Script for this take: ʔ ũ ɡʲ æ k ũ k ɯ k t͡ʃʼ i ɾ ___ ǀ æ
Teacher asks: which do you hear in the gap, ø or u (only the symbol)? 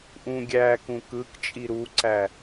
u